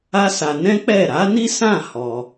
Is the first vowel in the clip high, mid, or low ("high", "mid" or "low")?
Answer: low